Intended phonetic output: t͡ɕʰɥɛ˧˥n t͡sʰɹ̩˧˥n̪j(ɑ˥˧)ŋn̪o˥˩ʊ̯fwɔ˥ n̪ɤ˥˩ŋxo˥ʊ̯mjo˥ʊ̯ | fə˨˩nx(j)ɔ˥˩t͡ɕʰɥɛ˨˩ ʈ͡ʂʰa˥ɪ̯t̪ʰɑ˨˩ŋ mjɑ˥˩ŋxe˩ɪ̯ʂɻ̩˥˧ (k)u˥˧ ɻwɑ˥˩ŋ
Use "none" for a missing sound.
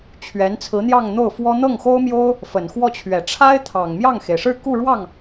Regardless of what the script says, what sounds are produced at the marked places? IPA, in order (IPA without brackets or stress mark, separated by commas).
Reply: ɑ˥˧, w, k